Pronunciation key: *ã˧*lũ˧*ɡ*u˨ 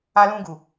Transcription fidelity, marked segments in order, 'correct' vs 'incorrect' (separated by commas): incorrect, correct